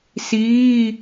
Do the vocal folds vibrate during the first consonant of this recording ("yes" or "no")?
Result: no